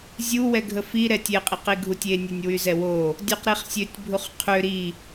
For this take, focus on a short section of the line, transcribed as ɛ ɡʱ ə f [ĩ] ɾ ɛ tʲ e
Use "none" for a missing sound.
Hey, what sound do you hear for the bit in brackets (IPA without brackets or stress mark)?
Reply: i